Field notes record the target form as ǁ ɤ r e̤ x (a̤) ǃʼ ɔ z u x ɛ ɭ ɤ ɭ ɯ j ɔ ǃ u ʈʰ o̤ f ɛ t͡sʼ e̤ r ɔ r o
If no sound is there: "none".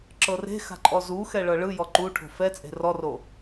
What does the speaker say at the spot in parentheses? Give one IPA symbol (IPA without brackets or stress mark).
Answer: a̤